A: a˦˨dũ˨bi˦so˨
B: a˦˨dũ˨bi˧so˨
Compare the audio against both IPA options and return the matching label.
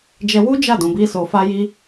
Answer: B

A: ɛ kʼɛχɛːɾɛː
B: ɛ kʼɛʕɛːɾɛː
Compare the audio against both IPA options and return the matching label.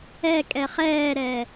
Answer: A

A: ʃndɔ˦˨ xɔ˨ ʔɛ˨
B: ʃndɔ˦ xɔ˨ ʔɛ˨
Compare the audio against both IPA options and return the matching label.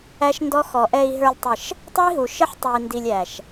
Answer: B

